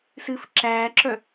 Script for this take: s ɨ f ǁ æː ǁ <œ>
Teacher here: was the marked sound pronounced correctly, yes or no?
yes